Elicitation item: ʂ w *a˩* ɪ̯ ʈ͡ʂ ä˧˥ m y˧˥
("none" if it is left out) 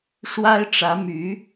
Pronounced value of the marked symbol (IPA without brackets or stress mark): a˥